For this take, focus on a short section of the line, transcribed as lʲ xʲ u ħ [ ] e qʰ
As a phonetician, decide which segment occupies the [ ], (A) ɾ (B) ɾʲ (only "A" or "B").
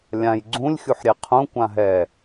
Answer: B